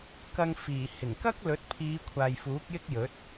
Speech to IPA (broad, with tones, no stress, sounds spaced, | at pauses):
k ɐ˧ ŋ f iː˨˩ h ɪ˨˩ ŋ k ɐ˥ k̚ l ɵ˨˥ t̚ pʰ iː˨˧ kʷʰ aː˨ j f uː˨˥ k̚ j ɪ˥ k̚ j ɵ˨˥ t̚